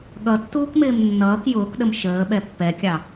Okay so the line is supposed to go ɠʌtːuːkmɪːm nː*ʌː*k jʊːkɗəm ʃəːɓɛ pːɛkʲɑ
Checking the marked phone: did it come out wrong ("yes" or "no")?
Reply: no